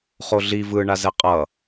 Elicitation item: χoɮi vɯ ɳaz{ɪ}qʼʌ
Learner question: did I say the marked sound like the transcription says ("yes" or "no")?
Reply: no